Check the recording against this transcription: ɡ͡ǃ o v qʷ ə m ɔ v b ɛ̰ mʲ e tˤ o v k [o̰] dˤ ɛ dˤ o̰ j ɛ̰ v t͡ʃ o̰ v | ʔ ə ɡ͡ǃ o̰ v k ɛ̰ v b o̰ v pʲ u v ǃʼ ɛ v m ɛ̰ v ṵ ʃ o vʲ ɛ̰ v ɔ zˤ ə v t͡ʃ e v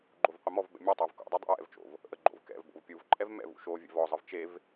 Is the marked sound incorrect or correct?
correct